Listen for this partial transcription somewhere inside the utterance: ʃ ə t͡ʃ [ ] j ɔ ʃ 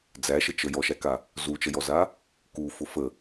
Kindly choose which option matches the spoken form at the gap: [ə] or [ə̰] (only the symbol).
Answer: ə